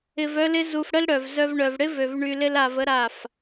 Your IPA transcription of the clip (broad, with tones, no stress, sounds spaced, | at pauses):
ɪ˧ v œ˦ l ɪ˦ z u˧ f ɽ ə˦ l ɽ œ˨ v z œ˦ v ɳ œ˧ v ɽ ɪ˦ v ø˨ v ɳ y˧ l ɪ˦ l a˧ v ə˦ ɾ a˦˨ f